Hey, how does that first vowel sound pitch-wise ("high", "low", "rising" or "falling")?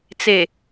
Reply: low